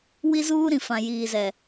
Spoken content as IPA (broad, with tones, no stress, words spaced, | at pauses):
wi˦zuː˦ɾĩ˨ fã˨jiː˨zɛ˨